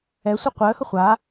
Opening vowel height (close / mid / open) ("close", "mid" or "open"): mid